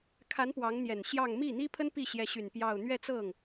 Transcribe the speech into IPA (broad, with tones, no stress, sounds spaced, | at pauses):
kʰ a˧˥ n p w ɑ˧˥ ŋ n̪ j ɛ˨˩ n ɕ j ɑ˥˧ ŋ m i˥˩ n̪ i˥ pʰ ə˥ n p i˥˩ ɕ j ɛ˧˥ ɕ y˨˩ n p j ɑ˥˧ ʊ̯ n̪ ɥ ɛ˥˧ t͡s ɤ˥˩ ŋ